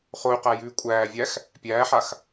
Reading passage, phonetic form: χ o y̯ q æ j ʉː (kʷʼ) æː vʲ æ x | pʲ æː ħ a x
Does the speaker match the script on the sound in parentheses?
yes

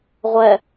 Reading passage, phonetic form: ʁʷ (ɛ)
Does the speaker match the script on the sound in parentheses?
yes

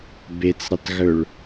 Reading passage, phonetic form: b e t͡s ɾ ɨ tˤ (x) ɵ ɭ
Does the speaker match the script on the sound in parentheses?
no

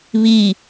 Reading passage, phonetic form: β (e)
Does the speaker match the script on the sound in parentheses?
no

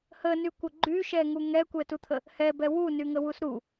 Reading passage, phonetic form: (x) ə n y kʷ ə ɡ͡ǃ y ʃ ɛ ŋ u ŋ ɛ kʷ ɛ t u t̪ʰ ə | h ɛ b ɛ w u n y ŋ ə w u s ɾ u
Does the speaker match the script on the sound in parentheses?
no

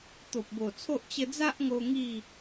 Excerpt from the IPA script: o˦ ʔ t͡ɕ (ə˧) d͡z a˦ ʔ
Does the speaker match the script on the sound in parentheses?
yes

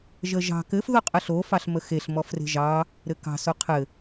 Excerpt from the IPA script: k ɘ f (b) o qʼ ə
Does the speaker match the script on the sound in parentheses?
no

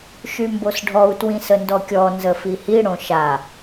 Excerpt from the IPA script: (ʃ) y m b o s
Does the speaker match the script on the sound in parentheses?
yes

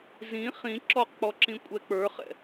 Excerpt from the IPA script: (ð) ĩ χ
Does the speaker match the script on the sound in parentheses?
no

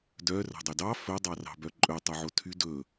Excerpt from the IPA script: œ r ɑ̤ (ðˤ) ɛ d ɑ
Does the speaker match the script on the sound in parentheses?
no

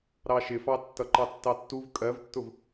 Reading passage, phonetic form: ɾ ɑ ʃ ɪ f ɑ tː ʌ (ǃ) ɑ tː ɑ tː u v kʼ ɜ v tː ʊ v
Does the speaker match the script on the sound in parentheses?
yes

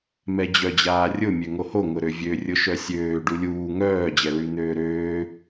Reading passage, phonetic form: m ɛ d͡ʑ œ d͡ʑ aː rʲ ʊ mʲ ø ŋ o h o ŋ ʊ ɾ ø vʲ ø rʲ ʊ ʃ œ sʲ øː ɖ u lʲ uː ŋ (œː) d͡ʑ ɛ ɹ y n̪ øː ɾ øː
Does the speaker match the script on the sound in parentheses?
yes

